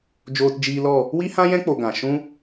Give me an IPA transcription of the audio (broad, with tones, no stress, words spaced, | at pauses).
d͡ʒoː˧td͡ʒiː˧lɔ˦˨ | wi˦hã˦jɛ̃˦ k͡po˧ɡã˨ ʃũ˦